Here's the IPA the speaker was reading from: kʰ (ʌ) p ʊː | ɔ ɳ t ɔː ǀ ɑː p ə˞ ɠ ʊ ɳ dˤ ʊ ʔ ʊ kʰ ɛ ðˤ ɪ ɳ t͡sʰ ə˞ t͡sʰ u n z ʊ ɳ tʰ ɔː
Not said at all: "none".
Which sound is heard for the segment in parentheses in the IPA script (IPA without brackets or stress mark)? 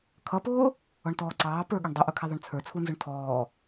ʌ